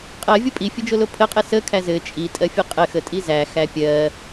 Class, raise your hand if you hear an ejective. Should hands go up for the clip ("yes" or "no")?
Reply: yes